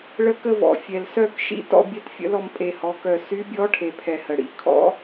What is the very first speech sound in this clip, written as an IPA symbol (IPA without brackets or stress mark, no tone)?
ɭ